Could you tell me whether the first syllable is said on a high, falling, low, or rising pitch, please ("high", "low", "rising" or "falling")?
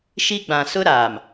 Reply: high